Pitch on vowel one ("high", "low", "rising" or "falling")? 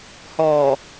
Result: low